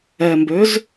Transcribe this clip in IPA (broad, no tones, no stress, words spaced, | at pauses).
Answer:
ɛmbøz